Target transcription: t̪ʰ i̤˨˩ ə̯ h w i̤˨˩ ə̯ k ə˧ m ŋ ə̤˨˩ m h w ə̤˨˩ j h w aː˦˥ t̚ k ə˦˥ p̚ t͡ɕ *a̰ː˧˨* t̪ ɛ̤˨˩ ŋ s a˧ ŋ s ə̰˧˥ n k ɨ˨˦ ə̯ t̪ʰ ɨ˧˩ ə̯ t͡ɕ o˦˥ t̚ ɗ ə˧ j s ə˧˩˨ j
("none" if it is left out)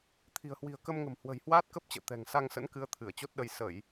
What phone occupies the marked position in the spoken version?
ə̰ː˧˨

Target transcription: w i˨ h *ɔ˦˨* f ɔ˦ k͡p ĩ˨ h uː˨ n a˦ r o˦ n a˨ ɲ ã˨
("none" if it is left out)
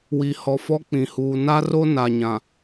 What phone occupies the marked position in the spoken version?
ɔ˨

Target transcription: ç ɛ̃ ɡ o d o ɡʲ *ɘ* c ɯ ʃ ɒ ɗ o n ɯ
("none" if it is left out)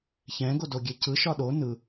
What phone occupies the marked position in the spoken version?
e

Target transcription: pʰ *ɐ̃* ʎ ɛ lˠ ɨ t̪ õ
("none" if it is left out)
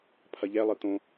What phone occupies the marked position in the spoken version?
ɐ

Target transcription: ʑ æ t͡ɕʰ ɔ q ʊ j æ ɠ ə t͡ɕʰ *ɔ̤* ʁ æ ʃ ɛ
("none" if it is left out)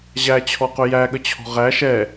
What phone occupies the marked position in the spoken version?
ɔ̤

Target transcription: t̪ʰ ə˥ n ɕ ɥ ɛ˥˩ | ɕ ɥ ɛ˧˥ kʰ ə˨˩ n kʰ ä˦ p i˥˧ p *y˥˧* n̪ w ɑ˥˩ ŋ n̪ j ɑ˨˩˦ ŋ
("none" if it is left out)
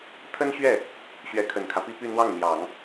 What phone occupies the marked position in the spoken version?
y˥˧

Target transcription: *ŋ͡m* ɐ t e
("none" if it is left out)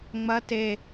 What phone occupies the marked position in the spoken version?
ŋ͡m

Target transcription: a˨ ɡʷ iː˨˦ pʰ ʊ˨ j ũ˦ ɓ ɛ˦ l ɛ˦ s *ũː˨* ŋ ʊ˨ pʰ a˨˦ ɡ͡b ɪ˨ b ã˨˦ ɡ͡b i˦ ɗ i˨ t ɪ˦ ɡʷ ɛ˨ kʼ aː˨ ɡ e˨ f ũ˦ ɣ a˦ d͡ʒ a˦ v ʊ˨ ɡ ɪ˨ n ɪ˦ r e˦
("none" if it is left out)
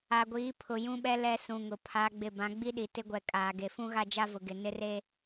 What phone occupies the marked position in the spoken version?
ũ˨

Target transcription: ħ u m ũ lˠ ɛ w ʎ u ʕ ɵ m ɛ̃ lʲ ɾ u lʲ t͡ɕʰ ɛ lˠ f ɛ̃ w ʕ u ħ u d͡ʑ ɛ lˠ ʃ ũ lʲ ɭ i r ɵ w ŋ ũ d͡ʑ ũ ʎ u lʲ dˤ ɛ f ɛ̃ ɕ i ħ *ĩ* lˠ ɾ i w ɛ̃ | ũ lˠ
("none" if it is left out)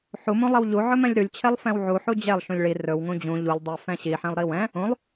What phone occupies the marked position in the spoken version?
ĩ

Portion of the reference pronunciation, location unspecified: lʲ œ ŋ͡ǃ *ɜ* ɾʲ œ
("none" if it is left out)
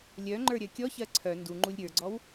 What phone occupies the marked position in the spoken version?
ə˞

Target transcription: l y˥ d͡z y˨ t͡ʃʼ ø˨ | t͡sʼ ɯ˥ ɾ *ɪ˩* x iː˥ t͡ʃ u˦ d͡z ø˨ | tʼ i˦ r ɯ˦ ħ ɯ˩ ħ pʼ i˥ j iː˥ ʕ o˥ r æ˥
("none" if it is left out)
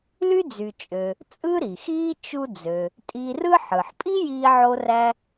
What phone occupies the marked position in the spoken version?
i˩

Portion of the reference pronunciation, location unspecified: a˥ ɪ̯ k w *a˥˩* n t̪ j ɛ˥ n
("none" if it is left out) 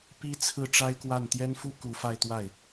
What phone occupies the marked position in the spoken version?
a˥˩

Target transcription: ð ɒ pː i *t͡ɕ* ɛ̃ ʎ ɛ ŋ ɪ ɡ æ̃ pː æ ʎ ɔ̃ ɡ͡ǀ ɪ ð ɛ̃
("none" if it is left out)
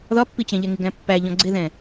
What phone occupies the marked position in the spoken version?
t͡ɕ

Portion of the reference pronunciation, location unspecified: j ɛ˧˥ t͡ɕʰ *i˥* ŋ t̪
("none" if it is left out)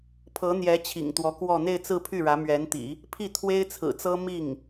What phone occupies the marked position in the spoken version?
ḭ˨˩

